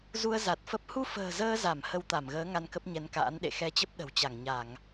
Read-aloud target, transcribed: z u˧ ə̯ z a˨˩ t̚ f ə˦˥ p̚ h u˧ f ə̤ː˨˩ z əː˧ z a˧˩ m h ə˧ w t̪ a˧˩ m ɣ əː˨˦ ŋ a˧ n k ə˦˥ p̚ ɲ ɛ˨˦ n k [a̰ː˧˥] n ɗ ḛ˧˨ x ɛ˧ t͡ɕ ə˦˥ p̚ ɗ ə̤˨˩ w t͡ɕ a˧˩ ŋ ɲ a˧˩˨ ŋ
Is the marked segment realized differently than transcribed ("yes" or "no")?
no